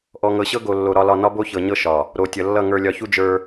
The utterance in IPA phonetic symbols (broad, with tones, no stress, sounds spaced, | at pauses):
ʔ ɔ˨ ŋ ɤ˨ ɕ ɤ˦ ɡ o˨ lː o˨ ɾ ɒ˨ l ɒ˨ n ɒ˦ b o˦ ç ɤ˨ ɲ ɤ˦ ʃ ɒ˨ | ɾ o˨ tʲ ʌ˨ lː ʌ˦˨ ŋ ə˞˨ lʲ ɒ˨ ç u˦ d͡ʒ ə˞˦